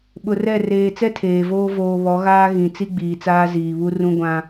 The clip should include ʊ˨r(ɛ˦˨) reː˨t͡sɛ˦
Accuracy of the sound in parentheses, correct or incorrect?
correct